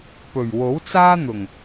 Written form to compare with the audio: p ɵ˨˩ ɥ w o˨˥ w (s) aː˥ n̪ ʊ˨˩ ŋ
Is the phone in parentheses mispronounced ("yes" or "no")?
yes